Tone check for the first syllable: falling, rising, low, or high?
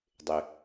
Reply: low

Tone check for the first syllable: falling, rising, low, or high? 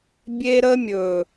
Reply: high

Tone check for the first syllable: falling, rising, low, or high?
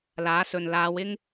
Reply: rising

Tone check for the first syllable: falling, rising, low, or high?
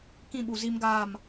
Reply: falling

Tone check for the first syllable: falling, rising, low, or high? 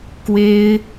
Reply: high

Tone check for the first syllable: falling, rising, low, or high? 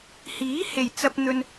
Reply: rising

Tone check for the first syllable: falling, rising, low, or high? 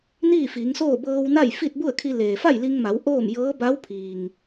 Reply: falling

